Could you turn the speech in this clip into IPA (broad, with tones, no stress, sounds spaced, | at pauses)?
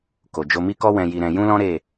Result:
k o˨ d͡ʒ o˧ m i˦ k ɔ˦ w ɛ̃˧ j i˧ ɾ ɛ̃˧ j ũ˦ l ɔ̃˦ ɾ e˦˨